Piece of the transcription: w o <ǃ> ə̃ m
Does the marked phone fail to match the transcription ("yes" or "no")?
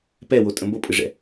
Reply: yes